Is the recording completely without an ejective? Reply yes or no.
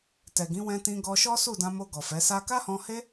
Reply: yes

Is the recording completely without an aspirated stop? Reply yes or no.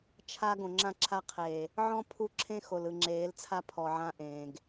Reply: no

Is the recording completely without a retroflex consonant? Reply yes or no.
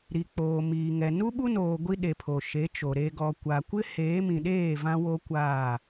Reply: yes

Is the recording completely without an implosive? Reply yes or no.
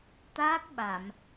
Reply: no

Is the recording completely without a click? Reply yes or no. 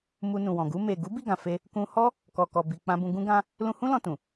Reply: yes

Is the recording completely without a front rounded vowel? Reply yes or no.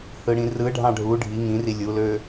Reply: no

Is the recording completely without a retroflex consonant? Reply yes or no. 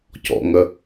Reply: yes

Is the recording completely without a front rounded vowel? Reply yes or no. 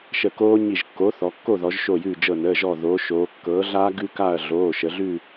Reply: yes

